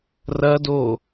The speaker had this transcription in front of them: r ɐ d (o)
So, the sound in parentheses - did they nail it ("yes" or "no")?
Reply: yes